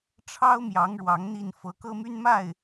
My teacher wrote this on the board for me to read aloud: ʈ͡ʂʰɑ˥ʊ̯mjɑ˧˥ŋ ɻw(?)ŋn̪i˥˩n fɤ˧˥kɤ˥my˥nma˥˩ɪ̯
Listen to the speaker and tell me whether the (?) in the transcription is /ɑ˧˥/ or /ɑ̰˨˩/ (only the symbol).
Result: ɑ˧˥